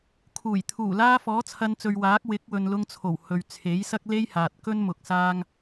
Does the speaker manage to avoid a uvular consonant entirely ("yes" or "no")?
yes